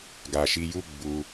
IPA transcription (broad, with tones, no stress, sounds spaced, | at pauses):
ɡ a˨ ʃ i˧ j u˦ ɡ͡b u˧